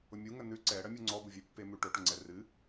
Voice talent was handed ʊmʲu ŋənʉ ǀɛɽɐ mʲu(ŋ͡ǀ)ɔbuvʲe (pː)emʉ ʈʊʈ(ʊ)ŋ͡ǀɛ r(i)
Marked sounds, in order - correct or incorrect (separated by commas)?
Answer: correct, correct, correct, incorrect